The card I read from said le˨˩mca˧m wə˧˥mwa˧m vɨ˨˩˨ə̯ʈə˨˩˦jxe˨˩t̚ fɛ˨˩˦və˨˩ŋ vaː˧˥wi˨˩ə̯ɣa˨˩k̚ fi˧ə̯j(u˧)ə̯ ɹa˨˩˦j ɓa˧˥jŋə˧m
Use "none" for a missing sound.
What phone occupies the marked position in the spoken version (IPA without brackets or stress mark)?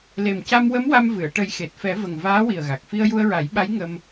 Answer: u˧